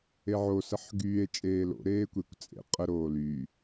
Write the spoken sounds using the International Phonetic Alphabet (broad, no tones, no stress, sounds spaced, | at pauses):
e ʕ o s ə ħ ɡ yː e̯ t͡ʃʼ eː l o̰ ɾ eː kʷ e kʷ t͡sʼ ḛ qʼ ə ɾ oː l yː